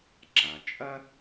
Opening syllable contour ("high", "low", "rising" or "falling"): low